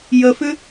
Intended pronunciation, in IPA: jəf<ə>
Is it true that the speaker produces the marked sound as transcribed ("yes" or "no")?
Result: no